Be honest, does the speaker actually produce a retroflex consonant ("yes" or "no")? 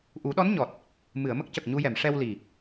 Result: yes